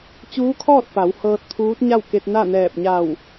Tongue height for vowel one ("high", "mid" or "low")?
high